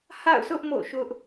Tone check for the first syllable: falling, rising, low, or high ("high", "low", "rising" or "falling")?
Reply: falling